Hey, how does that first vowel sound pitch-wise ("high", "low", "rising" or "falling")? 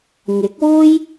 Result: rising